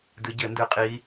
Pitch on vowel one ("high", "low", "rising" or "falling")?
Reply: rising